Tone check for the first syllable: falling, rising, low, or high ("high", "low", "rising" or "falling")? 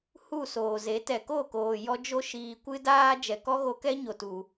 falling